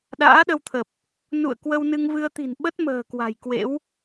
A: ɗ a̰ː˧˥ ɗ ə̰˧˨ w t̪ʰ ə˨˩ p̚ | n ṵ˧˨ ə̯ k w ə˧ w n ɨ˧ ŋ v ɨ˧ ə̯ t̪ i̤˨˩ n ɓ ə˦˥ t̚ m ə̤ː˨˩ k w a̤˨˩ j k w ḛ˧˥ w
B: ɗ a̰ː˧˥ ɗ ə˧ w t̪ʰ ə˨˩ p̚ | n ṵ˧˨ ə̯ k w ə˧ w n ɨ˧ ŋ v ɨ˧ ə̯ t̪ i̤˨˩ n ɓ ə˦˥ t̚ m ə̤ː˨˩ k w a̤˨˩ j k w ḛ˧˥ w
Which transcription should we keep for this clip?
B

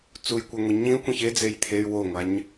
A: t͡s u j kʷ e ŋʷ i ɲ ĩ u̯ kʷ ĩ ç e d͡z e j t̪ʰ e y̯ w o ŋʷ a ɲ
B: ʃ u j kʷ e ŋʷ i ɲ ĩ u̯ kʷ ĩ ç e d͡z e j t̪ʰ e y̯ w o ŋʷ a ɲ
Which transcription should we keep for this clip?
A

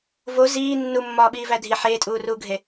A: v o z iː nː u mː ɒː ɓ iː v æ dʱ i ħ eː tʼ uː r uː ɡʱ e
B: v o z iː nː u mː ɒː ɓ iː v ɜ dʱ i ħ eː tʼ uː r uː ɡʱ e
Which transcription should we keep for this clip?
A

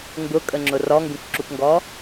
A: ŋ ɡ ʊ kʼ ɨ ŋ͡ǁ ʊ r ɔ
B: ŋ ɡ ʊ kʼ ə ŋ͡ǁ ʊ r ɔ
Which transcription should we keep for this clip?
B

